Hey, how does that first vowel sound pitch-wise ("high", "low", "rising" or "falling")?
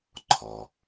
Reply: low